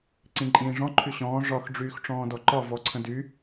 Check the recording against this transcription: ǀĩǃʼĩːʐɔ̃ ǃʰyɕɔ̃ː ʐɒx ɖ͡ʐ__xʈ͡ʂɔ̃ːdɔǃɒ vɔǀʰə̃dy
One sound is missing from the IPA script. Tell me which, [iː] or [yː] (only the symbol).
yː